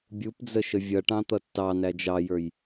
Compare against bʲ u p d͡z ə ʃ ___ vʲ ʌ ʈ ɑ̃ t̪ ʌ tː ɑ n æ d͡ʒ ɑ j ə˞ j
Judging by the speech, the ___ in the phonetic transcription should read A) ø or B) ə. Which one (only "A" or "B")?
B